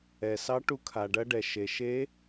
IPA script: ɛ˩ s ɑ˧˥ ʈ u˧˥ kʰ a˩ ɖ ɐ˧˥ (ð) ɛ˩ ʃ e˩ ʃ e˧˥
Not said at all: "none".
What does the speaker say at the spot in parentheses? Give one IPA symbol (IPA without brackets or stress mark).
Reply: ɖ